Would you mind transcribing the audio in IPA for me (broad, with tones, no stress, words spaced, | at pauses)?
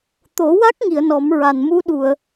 t̪o˨˩˦wa˦˥k̚ŋi˨˩˨ə̯ nɔ˨˩˦mɹa˨˩nmu˧˥ ɗu˨˩˨ə̯